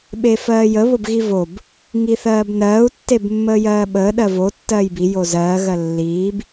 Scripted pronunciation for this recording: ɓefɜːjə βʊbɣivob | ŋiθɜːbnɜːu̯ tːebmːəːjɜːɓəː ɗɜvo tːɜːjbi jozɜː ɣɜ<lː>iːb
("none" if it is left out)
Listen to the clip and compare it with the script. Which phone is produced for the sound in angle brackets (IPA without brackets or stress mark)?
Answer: lː